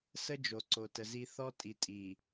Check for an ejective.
present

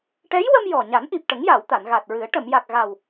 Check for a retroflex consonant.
present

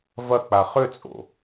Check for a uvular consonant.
present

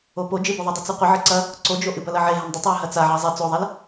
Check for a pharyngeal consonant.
present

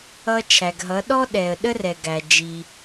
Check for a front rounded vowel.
absent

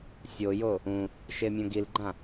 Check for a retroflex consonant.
absent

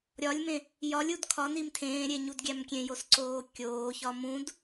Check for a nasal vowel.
present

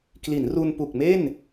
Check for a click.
absent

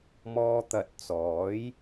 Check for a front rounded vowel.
absent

